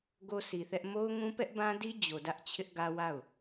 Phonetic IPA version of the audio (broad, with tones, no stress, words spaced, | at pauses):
ɡo˦si˨θɛ˦ʔ mo˦ʊ̯ŋũ˦ pɛ˦ʔbã˦ di˦ d͡ʑo˨dä˦ʔt͡ɕʰɪ˦ʔ ɡä˦wa˦˨ʊ̯